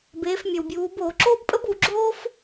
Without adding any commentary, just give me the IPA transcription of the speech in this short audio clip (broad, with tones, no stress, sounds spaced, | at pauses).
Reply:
b eː˩˧ f mʲ œ˩ w bʲ uː˩˧ b oː˧˩˧ ǁ oː˥ b pʼ ə˥ b u˩˧ ɡ͡ǁ oː˥ f